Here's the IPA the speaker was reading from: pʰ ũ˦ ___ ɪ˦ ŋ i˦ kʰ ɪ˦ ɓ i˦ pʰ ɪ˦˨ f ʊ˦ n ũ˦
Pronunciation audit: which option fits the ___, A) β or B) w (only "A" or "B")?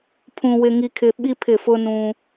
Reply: B